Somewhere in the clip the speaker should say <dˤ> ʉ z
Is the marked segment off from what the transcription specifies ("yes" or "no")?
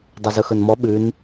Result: no